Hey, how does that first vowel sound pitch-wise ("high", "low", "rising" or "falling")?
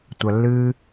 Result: low